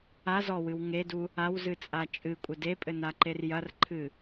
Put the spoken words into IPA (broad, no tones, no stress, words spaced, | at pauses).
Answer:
azɔwɨw ŋedu | awzɨt͡sʼa t͡ʃʼɨkʷʼɘ depʼɘnaǃer jɐrǃʰɨ